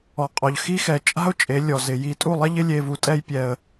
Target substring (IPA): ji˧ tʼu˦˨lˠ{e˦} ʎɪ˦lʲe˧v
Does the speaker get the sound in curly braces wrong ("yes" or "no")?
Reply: yes